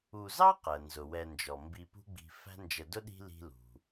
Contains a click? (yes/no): no